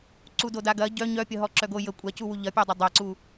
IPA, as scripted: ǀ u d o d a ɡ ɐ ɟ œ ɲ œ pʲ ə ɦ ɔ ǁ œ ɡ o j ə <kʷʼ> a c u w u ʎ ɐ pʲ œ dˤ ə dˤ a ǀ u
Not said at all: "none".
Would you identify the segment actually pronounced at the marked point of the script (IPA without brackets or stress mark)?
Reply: kʷʼ